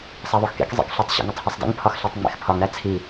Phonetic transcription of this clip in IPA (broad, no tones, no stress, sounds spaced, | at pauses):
sˤ æ ðˤ o x k ḛ k zˤ ḛ k ɬ o tˤ ɕ ḛ ŋ ɒ tˤ h e sˤ d ḛ ŋ pʰ ɒ x ɬ æ tˤ ŋ͡m ḛ x pʰ ɒ ŋ ɾ æ t͡sʰ i